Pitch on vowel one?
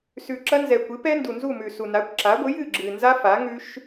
low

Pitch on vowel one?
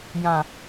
low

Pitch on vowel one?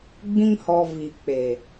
high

